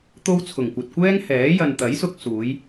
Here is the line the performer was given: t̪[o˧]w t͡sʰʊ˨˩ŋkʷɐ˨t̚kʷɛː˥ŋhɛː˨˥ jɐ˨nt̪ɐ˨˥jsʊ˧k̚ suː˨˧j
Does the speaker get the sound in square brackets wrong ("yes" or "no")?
no